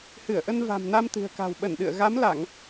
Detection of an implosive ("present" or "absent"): present